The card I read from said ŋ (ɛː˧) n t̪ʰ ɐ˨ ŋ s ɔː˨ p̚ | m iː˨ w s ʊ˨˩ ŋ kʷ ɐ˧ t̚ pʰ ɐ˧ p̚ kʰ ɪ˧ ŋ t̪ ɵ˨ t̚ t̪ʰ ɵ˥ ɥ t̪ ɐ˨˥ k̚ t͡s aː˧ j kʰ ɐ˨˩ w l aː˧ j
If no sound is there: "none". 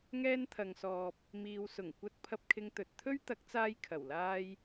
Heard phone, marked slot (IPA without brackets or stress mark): ɛː˧